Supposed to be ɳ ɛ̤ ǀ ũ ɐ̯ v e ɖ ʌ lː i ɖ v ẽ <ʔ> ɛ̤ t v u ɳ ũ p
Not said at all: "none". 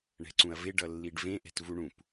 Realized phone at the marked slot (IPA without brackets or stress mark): ʔ